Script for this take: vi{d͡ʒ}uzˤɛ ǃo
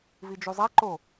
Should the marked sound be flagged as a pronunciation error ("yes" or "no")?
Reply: no